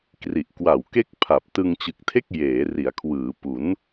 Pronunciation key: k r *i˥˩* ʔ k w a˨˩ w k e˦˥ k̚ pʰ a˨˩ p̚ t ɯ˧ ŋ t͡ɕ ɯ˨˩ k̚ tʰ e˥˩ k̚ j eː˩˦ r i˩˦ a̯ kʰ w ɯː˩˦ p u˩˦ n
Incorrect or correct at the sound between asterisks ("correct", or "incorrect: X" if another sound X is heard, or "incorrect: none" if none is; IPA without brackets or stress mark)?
incorrect: i˨˩